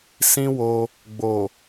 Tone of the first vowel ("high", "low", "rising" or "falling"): high